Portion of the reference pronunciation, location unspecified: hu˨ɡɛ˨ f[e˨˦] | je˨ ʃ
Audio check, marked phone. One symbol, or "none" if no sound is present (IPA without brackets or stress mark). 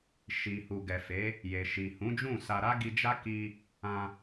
e˨˦